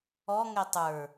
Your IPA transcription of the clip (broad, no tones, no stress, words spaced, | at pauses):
ɔ ŋɛtˤə˞